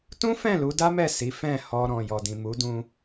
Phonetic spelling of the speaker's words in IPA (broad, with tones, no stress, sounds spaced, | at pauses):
t ũ˦ f ɛ̃˦˨ l u˨˦ d a˦ m ɛ˦˨ s i˨˦ f ɛ̃˦˨ h ɔ˧ ɾ ɔ̃˨ j ɔ˨ d ĩ˨ m u˨˦ d ũ˧